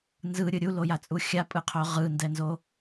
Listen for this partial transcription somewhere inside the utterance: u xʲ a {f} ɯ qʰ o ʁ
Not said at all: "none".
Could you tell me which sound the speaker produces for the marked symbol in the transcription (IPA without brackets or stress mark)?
pʼ